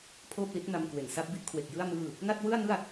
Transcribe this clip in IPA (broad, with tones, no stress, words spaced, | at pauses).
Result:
pʰoː˥˩p̚li˦˥t̚ na˧mkwe˨˩nsa˥˩p̚bi˥˩ʔ kʰwe˨˩k̚jɯ˥˩a̯ mɯː˥˩ | na˥˩t̚wɯ˥˩a̯nɯ˥˩a̯